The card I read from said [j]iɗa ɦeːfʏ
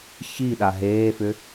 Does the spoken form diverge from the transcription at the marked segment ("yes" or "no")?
yes